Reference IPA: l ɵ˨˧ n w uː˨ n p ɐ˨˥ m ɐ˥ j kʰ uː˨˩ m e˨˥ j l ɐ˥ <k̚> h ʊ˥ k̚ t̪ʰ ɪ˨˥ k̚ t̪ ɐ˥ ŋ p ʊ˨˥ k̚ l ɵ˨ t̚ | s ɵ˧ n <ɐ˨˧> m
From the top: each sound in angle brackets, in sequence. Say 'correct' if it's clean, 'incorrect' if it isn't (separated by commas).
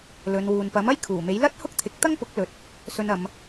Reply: incorrect, correct